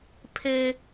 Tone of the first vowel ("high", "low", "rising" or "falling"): high